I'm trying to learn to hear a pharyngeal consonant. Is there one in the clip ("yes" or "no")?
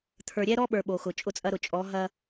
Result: no